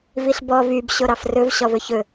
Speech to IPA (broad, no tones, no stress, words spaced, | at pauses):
viɬbɔ vyb ɕoɾɑfrɵv ɕɔvɵçɵ